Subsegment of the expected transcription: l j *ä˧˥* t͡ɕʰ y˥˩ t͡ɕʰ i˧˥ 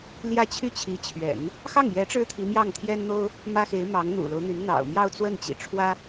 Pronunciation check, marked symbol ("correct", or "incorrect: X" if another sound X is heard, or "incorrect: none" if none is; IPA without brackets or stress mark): incorrect: ä˥˧